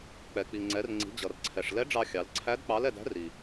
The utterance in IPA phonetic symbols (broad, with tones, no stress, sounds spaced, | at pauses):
k͡p ɛ˩ k͡p i˩ ŋ͡ǀ ɛ˩˧ r ŋ͡ǀ i̤˩˧ d͡ʑ ʌ˩ r ǀʰ ɛ˩ ʂ l ɛ˧˥ ɖ͡ʐ ɑ˧ xʲ ɑ˩˧ l ǀʰ æ˧˥ d k͡p ɑ˧˥ l ɛ˧ d æ̤˧˥ r i˩